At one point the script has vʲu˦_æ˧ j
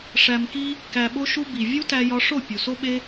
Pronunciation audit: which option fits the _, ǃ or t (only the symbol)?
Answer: t